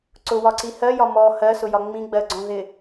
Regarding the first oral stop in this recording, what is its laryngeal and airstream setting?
click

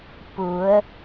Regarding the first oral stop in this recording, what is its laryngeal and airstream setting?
plain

